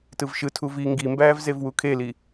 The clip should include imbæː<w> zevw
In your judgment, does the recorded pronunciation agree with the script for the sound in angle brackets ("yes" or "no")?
no